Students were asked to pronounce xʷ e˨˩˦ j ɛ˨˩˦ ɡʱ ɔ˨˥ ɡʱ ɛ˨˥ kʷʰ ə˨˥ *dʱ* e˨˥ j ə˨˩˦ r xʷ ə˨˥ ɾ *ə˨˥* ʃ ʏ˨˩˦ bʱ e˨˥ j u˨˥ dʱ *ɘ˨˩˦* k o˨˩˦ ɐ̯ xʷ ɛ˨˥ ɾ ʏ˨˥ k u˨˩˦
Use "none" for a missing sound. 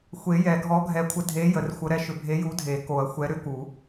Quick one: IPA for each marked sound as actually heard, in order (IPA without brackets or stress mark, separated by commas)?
dʱ, ɛ˨˥, e˨˩˦